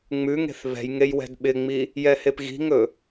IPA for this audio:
ŋ͡m ʉ ŋ e̤ θ β ɛ̤ j ŋ e j w ɛ̤ d ɓ ɪ ŋ͡m i | j ɛ h e p ɣ i̤ ŋ ɵ

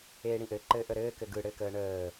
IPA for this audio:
eː ɽ ĩ ʔ ɘ ǃ ɘː ʔ ə ɾ ɘː k ɘ ɡ ɯ ɽ ɘː k əː ɳ əː

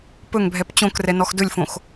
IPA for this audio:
p ɵ ŋ bʱ ɛ p t͡ɕ õ k r ɛ n ɔ x d ɵ lʲ f õ x

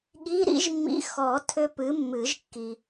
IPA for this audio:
ɠ i˧˥˧ ɾ ḭ˦˥ ʒ mː ḭ˧˥˧ x ɔ˨˩˦ tʰ ʏ˦˥ p ɨ˨˥ mː ɨ˨˩˦ ʒ kː i˨

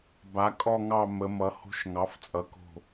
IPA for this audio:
b a˩˧ kʼ ɔ˦˨ ŋ ɑ˦˨ m ə˩˧ m ʌ˩˧ h o̤˧˥ ʃ ŋ ɑ˩˥ f t͡sʼ ʌ˩˥ k o̤˦˨

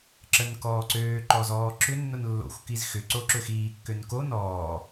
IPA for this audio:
ǁ ə n k ɔː ǀ øː ǃ ɔ z ɔː ǁ ʏ nː ʊ n lː o̰ xʷ k i z x ʏ ǀ o ǁ ø x iː kː ø n k o n ɔː

